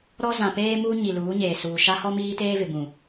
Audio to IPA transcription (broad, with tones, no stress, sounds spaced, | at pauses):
ɾ ɔ˦ z ã˨ p eː˦ m uː˦ ɲ i˨ l uː˨˦ ɲ eː˨ s uː˨ ʃ a˦ h ɔ˦ m iː˦ t eː˦ v ɪ˨ b ũ˨